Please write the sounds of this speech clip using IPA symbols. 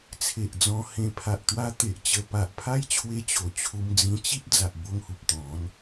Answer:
t͡sʰ e˨ ʔ d͡z ɔ̃˧ h ẽ˧ pʰ a˨ ʔ t̪ w a˧ t̪ e˨ ʔ t͡ɕ ə˧ p a˨ ʔ pʰ a˦ j t͡ɕʰ w e˧ t͡ɕ o˨˩ t͡ɕʰ u˧ m d͡z ĩ˧ t͡ɕ i˦ p̚ d͡z a˨ ʔ b o˧ ŋ h u˨ p̚ t̪ ɔ̃˨˦ n

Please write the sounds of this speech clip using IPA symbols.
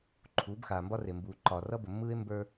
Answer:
ǃʰ uː˨˦ b x aː˨ m b ɒ˦ r e˨ m b uː˨ ǃ ɒː˨ r ʌ˦ b ə˨ mː ɯː˦ e̯ m b ə˞˦

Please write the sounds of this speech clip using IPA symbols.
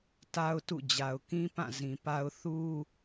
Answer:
t a˦ ʊ̯ t ṵ˦˨ d͡ʑ a˨ ʊ̯ k ĩ˦ p ã˦˨ z ĩ˨ p a˦ ʊ̯ θ u˦

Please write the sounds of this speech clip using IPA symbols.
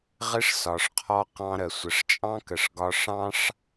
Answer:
ʁ ɪ˥ ʂ s ɒ˩ ʂ qʰ ɔ˧ q ɑ̃˧ ɾ ə˩ sʷ ə˩ ʂ t͡ʃʼ ɑ̃˥ k ə˩ ʂ ɡ ɒ˧ ʂ ɑ̃˥ ʂ

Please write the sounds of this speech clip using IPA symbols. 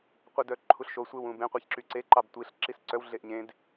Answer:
qʷ œ d œ ǃʰ u ɬ ʃ o sʷ e w ũ b ẽ qʷ e ç ǁ y ǀ e ǃ ɑ b tʷ i ɬ ǁ i s ǀ œ w ɮ e ʔ ɲ ẽ d

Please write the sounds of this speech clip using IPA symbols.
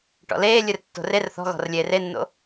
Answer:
ʈ ɔ̰ l eː lʲ ɨ r tː o̤ r e r θ ɔ̤ ɣ ɔ̤ r lʲ eː r e nː o̰

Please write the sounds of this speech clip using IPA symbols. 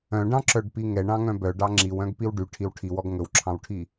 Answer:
œ̃ ɖ ɑ̃ ǁ œ ɖ p i ŋ ɛ ɳ ɑ̃ ŋ œ̃ b œ ɖ ɑ ŋ͡ǁ i w œ̃ ɡ p i w ɖ y ʈʰ i w ʈʰ i w ɔ ɡ ŋ ɵ w ǁʰ ɑ̃ w ʈʰ i

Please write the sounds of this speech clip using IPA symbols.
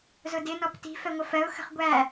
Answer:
z ʊ d ɪ n ɔ p t i̤ f ɛ ŋʷ ə f ɜ ʊ̯ x ə̤ χ ɡʷ æ

